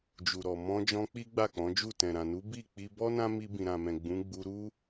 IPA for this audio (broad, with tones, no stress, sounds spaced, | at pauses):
d͡ʒ u˨ ɾ ɔ˨ m ɔ̃˧ d͡ʒ ɔ̃˧ k͡p i˦ ɡ͡b a˦˨ k͡p ɔ̃˨˦ d͡ʒ u˦˨ t ɛ̃˨ ɾ ã˨ n u˨˦ b i˦˨ k͡p i˧ b ɔ˦ n ã˦ m i˧ b ĩ˨ ɾ ã˨ m ɛ̃˨ ɡ͡b ũ˨˦ ɡ͡b u˧ ɾ u˦